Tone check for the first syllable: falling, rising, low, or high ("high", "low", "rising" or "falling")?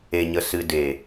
low